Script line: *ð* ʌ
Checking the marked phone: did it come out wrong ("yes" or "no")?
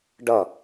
yes